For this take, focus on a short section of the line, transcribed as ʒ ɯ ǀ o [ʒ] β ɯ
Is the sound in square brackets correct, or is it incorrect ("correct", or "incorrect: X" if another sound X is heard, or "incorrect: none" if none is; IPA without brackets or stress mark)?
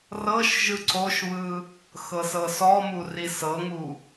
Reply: incorrect: ʃ